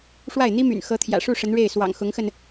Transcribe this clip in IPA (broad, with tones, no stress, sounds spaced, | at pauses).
ʂ w a˥˩ ɪ̯ n̪ i˥ m y̰˨˩ n x ɤ˧˥ t̪ʰ j ä̰˨˩ ʂ u˥˩ ʂ ə˧˥ n ɻ e˥˩ ɪ̯ s w ɑ̰˨˩ ŋ x ʊ˧˥ ŋ x ə˧ n